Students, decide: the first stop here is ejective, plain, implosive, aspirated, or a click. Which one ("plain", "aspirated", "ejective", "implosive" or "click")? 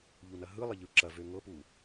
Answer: click